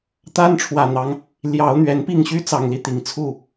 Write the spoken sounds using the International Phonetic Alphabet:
t̪a˦nʈ͡ʂʰwä˨˩n̪ɑ˨˦ŋ | ljɑ˨˦ʊ̯n̪ɥɛ˨˦npi˥˨ŋɕy˦ t͡sɑ˨˩ŋli˨˦ t̪i˨˩ŋt͡sʰu˥˨

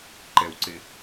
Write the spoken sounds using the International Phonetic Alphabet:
ǃɛwǀe

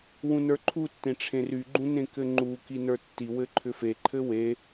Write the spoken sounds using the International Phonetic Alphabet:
wũnə˞ǃʰutːẽ ʈ͡ʂʰẽryɡ͡ǃũ nẽkɘŋ͡ǃuki nə˞tːiwɘ ǃʰʏfeǃʰɘ we

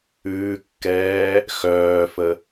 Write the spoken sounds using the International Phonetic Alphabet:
ʉːkːɛː | xœːfə

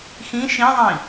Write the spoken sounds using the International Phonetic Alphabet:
xĩ ʃĩðˤĩ

